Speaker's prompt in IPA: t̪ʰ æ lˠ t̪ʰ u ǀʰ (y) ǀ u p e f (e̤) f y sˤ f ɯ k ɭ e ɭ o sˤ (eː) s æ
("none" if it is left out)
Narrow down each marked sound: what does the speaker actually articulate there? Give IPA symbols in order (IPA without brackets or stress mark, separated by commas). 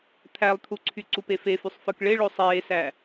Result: y, e, eː